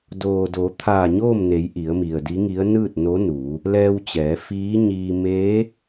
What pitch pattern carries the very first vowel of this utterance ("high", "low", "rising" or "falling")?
low